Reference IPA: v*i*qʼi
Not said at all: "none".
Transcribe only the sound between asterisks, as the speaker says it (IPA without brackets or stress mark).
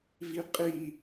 i